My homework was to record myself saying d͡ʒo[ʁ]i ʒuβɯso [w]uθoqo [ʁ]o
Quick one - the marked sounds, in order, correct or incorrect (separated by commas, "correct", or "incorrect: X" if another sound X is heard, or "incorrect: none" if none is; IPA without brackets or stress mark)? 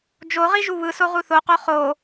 correct, incorrect: ʁ, incorrect: χ